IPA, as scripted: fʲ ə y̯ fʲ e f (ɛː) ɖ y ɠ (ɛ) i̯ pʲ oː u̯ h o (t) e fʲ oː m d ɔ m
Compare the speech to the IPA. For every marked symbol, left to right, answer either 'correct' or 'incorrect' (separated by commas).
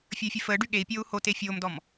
incorrect, incorrect, correct